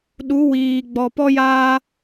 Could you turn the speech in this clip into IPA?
ɗ u˨˦ w iː˨ ɡ͡b ɔ˨ p ɔ˦ j aː˦

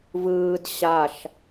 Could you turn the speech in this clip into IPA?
v ɯː d ɕ a ʃ

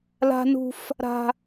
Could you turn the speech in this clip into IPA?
l a̤˦ n ṳ˦ f | ɾ a̤˦

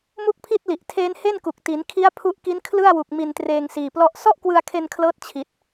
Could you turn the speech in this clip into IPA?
m u˥˩ k̚ pʰ i˥˩ t̚ l i˨˩ ʔ tʰ eː˦˥ n h e˥˩ n k u˨˩ k̚ t i˩˦ n kʰ i˦˥ a̯ pʰ u˦˥ ʔ k i˦˥ n kʰ l ɯ˥˩ a̯ w u˨˩ k̚ m i˧ n t r eː˧ ŋ s iː˨˩ p l ɔ˦˥ ʔ s ɔ˥˩ ʔ k w ɯ˧ a̯ kʰ e˧ n kʰ l ɤː˦˥ t̚ t͡ɕʰ i˨˩ t̚

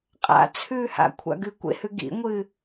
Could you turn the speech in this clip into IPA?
qʼ a̰ t͡sʰ ʉː h a̰ kʷʰ a̰ ɡ ɨ kʷ ḛ h ʉ ɡ ḭ ŋʷ ɨː

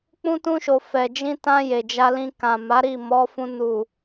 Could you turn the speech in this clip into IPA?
k͡p ũ˦ t ũ˦ ʃ o˧ f ɛ˨ d͡ʒ ĩ˧ t ã˧ j e˨ d͡ʒ a˧ l ĩ˧ k ã˨ m a˨˦ ɾ i˦˨ m ɔ˨˦ f ũ˧ n u˨

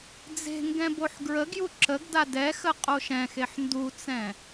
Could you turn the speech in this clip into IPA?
d͡z e̤ ŋ ɡ ɛ̃ b o ħ ɡ ɹ ə ɡ j u ǁ ə ɡ d a d ɛ x ə qʼ o ʃ ɛ̃ x e ħ n d u t͡s ɛ̃

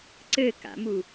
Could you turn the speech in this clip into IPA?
ǀ ɘ k a̰ m u

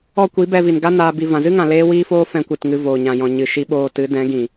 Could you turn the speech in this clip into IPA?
ɔ˧ kʷ i˨˦ b ɛ˧ v i˨ n ɡ a˦ n aː˧ b i˧ v ã˨ z ɨ˦ ŋ ã˨ l eː˦ w iː˦ f oː˦ f ɛ̃˧ kʷ ɨ˨ t ŋ ɨ˧ v oː˨ ɲ ã˨ j ɔ̃˨ ɲ ɨ˨ ʃ i˧ ɓ oː˧ t ɨ˨˦ d ɛ̃˨˦ ɡ ĩ˨

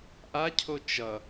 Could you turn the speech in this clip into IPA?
ʔ a cʰ o t͡ʃ ʌ

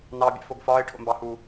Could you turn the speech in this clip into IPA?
n ɑ bʲ ɛ̰ f o ɡ f ɒː ɪ̯ ʈʰ o̰ m b ɑ h uː

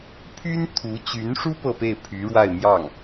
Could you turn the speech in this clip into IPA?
pʰ y˥ n t̪ʰ u˧˥ t͡ɕ y˧˥ n ʂ u˥ p ɤ˥˧ p e˥˩ ɪ̯ pʰ y˧˥ ɻ w a˥˧ ɪ̯ m j ɑ˥˩ ŋ

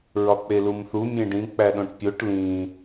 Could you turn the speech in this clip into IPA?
ɹ ɒ k͡p e l u m θ u mʲ ẽ ɖ ĩ k͡p æ ɗ õ ʈ pʲ o ʈ l ĩ

